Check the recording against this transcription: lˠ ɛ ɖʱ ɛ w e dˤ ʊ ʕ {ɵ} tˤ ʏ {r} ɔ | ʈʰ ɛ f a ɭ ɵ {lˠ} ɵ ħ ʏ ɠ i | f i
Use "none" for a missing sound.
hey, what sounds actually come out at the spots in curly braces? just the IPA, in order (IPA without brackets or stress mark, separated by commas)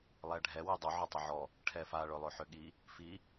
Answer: ʊ, ʕ, lˠ